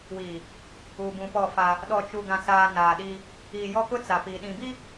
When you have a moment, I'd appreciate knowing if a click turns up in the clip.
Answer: no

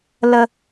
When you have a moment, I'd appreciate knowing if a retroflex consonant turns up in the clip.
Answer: no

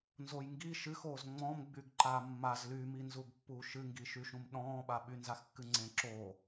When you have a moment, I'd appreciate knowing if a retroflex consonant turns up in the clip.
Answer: no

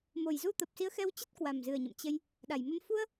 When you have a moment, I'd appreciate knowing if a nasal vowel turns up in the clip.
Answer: no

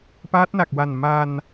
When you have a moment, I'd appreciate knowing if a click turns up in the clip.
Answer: no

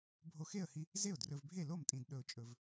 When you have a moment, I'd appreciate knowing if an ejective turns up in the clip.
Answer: yes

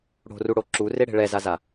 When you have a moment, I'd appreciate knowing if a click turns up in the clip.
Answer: yes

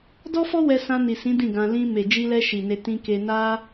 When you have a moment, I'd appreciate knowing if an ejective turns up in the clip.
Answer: no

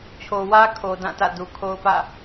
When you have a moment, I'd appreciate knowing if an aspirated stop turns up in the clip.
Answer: yes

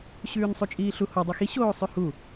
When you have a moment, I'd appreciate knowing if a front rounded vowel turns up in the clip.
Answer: no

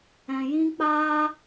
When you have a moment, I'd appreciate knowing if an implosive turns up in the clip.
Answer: no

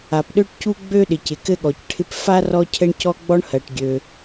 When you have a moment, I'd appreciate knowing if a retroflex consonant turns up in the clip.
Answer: yes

